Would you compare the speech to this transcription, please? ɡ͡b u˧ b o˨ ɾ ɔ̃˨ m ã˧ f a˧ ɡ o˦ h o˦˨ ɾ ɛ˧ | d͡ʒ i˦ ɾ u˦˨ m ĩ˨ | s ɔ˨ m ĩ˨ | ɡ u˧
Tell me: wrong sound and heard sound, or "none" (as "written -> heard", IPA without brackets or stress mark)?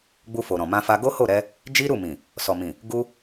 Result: b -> f